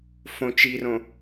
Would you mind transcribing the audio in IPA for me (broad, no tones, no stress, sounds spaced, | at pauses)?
f õ t͡ʃ i r õ